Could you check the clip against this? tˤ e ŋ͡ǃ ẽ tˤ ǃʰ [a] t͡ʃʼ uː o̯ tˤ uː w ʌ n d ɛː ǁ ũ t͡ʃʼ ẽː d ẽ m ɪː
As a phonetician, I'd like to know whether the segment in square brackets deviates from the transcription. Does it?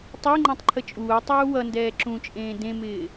yes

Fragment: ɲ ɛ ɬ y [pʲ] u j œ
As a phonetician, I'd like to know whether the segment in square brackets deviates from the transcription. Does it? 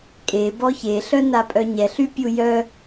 no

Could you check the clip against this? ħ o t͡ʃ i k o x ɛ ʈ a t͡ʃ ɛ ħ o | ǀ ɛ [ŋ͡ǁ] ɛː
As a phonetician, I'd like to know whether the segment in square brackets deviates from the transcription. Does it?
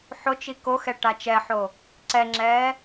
no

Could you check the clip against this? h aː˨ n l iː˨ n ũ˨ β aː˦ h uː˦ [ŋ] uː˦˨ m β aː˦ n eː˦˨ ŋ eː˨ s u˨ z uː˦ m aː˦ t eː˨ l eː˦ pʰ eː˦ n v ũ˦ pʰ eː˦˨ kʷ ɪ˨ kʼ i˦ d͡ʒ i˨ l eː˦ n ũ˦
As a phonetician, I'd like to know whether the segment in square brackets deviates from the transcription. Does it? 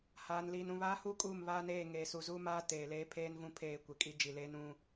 yes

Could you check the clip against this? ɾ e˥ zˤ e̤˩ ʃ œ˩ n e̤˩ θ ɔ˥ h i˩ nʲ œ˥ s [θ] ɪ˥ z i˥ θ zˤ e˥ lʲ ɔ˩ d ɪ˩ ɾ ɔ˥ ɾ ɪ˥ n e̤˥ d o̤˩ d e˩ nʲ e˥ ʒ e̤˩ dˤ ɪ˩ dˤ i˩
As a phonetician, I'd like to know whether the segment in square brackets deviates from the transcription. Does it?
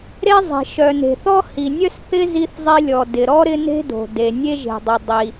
no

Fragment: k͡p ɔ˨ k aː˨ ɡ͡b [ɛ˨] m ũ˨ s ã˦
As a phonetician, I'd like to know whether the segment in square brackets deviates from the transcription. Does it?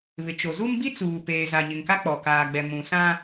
no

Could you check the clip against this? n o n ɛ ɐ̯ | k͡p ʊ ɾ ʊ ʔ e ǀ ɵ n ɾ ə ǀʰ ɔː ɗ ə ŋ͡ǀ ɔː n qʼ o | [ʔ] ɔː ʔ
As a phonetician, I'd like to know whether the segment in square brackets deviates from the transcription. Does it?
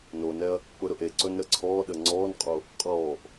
yes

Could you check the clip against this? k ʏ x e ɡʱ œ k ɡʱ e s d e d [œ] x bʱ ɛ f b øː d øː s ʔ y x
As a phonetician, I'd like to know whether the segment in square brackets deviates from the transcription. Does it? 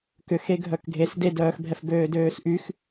yes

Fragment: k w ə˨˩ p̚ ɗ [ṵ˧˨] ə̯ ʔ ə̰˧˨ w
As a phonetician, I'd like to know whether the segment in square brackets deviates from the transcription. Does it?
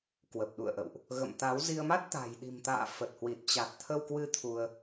no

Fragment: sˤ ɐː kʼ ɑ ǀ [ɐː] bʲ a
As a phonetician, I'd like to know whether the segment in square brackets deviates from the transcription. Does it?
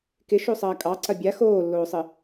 yes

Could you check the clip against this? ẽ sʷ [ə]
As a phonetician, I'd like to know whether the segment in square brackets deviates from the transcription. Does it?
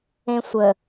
no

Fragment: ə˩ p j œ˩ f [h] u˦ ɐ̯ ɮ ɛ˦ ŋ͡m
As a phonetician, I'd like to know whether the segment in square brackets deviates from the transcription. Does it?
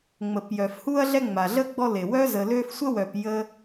no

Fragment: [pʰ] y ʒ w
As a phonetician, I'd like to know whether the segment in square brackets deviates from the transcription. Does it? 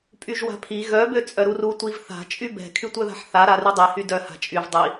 yes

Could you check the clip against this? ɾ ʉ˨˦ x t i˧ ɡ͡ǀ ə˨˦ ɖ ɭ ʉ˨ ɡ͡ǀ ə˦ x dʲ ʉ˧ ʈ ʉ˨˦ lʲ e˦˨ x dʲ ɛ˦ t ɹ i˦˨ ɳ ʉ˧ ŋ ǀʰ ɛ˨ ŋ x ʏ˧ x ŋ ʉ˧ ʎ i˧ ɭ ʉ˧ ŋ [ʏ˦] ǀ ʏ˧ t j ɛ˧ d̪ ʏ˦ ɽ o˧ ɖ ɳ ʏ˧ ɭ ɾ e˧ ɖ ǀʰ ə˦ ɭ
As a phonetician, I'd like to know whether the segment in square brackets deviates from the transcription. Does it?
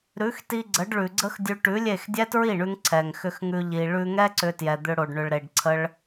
yes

